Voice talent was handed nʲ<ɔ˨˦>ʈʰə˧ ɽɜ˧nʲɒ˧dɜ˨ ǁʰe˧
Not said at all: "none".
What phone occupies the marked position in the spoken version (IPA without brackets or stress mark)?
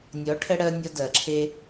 ɔ˨˦